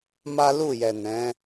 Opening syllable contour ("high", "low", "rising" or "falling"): high